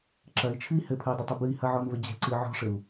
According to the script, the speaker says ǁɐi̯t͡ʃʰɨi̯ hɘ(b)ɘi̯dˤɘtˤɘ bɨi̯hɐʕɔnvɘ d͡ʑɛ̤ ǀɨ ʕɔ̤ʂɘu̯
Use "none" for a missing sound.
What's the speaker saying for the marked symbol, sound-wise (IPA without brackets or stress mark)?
pʰ